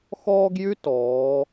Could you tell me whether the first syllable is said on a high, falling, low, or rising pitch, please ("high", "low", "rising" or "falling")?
high